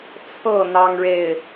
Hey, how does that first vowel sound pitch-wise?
falling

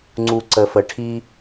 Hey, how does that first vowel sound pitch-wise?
low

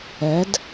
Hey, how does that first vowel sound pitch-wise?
rising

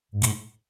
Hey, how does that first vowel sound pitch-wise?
high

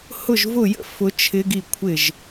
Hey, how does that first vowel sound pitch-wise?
falling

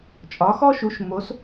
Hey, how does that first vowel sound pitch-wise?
rising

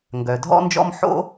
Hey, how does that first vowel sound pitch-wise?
low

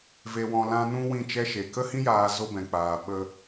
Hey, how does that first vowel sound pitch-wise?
low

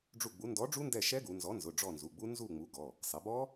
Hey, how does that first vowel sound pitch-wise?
falling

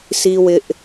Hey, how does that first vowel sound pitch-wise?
high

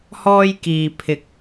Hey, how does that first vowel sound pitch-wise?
high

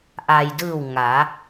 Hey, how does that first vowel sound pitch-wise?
low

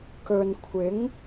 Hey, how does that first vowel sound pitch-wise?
low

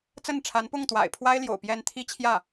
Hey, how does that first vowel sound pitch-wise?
falling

